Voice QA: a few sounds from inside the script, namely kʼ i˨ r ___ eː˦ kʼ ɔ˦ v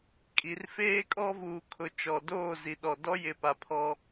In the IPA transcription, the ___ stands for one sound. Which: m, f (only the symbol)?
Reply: f